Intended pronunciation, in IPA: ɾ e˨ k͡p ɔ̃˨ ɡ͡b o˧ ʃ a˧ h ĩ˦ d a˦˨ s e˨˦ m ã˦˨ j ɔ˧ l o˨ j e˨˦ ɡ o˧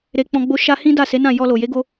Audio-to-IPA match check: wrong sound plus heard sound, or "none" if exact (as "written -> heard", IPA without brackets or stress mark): m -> n